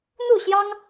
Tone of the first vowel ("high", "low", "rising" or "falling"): falling